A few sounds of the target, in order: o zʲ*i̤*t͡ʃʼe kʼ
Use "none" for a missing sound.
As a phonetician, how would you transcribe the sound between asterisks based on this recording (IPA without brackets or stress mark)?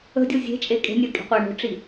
e̤